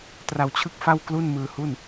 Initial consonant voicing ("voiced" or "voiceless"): voiceless